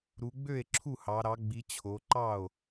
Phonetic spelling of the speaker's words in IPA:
ɾ u˩˧ ɡ͡b ø˥˩ e̯ ǁʰ u˥˩ h ɑ˩˧ ɾ ɑ˩˧ ɡ͡b i˩˧ t͡ɕʰ o˩˧ ǃ ɑ˥˩ o̯

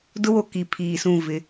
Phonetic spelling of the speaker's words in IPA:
d ʊ˦ w o˨ k i˨ pʰ iː˨ s ũ˦˨ v ɪ˨˦

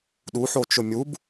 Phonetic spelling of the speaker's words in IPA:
ɗ u ħ o t͡ʃ ʊ mʲ u b

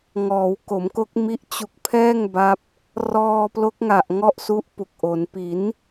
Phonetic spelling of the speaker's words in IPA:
ŋ ɔː˩˦ w k o˩˦ m k o˦˥ k̚ m i˦˥ ʔ t͡ɕ u˦˥ k̚ pʰ ɛː˥˩ ŋ b a˦˥ p̚ | r ɔː˧ p l o˦˥ k̚ ŋ a˨˩ ʔ ŋ ɔ˦˥ ʔ s u˦˥ ʔ p u˨˩ k̚ ʔ o˩˦ n p i˩˦ n

